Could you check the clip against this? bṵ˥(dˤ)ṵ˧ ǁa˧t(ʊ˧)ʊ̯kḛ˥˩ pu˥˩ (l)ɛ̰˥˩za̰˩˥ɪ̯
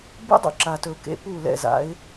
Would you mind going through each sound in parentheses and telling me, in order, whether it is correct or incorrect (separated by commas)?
correct, incorrect, correct